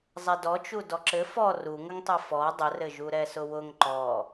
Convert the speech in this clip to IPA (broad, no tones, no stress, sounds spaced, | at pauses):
zˤ ɛ d ɔ t͡ʃ u d ɔ ǁ ɘ f ɔ r u ŋ ə ŋ tˤ ɛ f ɔ dˤ ə r ɘ ʒ u ɾ ɛ s ʊ w ʊ ŋ ǃ ɔ